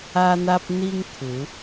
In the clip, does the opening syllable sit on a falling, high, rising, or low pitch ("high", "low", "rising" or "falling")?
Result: high